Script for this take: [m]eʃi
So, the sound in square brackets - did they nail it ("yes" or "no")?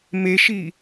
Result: yes